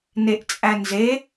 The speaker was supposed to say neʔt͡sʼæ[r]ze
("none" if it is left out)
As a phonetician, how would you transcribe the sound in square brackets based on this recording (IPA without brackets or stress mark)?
n